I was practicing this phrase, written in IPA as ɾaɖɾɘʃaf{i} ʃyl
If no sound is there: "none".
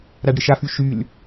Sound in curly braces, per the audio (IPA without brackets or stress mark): y